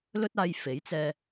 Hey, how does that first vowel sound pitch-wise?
high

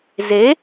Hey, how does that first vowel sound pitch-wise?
rising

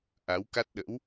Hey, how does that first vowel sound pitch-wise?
rising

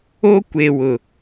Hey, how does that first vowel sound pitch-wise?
high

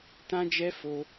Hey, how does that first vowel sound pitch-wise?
high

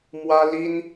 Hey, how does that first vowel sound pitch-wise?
high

